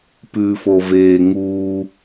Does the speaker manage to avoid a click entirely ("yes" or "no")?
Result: yes